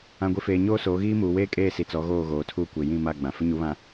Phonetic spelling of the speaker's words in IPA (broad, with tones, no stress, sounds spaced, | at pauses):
ã˨ ɡʷ i˨ f eː˨ ɲ oː˦ s oː˨˦ ɣ iː˦ m uː˨ w eː˦ kʼ eː˦˨ s i˨ t͡s ɔ˨˦ ɣ oː˦˨ ɣ oː˨ tʰ uː˦ kʷ e˨ j ĩ˦˨ m a˦˨ ɡ͡b ã˨ f ɪ˦ ɲ u˨˦ β ã˨